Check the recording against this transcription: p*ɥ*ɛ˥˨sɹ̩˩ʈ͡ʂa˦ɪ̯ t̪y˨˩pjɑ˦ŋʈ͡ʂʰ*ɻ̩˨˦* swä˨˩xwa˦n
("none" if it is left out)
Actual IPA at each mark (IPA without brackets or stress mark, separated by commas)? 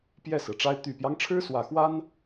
j, ɻ̩˦